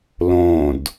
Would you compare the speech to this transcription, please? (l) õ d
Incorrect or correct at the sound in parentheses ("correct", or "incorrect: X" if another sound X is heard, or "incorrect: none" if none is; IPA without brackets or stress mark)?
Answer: correct